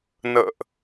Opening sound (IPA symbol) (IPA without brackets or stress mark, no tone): n